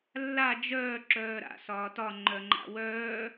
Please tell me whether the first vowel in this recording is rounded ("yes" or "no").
no